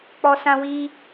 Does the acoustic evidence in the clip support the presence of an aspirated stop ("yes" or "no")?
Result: no